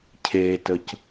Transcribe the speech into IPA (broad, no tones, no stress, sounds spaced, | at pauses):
cʰ e t ə c